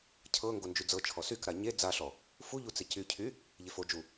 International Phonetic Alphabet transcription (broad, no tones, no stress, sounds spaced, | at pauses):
cʰ ɤ ŋ ɡ o n d͡ʒ y d͡z ɤ t͡ʃʰ ɔ s y k ɾ a ɲ e d͡z a ɬ ɔ | f u ʎ u t͡s e c y cʰ y | ʎ e f o d͡ʒ u